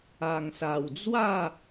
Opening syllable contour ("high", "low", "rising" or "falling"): low